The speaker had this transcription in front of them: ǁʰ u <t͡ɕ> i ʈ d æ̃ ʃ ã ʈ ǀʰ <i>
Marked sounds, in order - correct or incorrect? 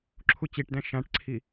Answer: correct, correct

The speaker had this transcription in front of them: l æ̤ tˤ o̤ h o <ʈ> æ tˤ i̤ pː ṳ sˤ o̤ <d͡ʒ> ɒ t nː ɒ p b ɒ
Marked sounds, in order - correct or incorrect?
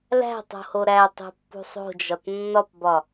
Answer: incorrect: ɾ, correct

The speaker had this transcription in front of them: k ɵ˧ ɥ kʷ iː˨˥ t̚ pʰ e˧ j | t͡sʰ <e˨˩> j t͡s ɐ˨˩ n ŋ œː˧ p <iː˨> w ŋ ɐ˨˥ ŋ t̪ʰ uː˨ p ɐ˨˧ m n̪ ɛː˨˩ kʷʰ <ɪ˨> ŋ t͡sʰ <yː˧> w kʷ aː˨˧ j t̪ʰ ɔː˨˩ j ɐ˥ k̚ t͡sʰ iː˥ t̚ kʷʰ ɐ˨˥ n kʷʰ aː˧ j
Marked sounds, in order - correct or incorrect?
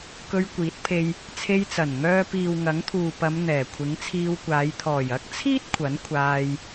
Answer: incorrect: e˧, correct, incorrect: ɪ˨˥, incorrect: iː˧

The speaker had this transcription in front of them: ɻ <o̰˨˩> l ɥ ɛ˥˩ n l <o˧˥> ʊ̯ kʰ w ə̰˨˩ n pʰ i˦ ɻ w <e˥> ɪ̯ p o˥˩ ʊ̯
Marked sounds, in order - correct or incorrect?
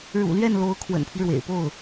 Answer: incorrect: ṵ˨˩, correct, incorrect: ḛ˨˩

